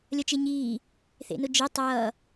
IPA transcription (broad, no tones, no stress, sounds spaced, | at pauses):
lʲ ʌ t͡ʃ e ɲ iː | θ ḛ n ʊ d͡ʒ e tˤ ʌː